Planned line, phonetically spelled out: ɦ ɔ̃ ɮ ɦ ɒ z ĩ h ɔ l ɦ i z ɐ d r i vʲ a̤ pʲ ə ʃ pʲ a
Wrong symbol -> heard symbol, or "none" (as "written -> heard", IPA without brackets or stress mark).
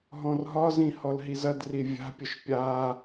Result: ɮ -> r